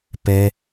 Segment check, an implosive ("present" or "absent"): absent